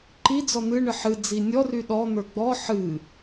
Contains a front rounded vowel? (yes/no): yes